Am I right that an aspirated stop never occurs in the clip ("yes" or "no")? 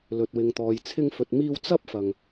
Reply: no